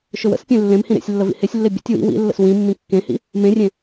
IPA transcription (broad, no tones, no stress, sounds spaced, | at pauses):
ʃ ɵ w ə̰ s pʲ ẽ lː ẽ m h ĩ ɾ ḛ sʲ lː ə v ḭ h e sʲ lː e bʲ ə̰ tʲ w ḭ w ḭ lː ə̰ s w ĩ mː ĩ kː ẽ h ḭ | m ẽ rʲ ẽ